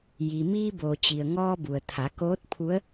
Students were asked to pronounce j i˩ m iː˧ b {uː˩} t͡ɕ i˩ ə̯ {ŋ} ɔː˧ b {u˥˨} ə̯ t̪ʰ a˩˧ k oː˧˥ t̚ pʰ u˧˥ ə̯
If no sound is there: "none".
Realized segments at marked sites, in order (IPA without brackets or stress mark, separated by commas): oː˩, ŋ, u˩